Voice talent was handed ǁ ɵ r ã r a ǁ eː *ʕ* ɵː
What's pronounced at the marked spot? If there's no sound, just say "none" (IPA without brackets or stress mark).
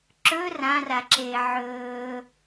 ʕ